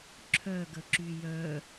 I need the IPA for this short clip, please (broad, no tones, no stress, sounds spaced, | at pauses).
ǁʰ œ ɡ ə ǁ y j œ